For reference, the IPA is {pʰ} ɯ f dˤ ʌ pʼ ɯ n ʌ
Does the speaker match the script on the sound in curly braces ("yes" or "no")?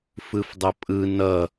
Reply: no